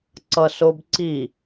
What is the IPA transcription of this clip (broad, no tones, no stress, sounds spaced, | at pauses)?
ǀ ʌ s o b ǀ i